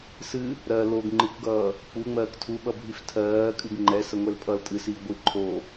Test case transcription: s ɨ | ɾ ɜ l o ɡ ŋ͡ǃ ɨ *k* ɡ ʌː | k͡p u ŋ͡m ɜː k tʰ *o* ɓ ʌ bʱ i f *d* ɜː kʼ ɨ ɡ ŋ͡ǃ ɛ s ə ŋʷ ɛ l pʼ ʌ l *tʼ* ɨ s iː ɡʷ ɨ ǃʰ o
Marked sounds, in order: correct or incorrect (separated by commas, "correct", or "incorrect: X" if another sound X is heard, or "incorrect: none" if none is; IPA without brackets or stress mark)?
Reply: correct, incorrect: u, incorrect: tʰ, correct